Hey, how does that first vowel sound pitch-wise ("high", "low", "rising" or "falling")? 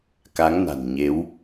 rising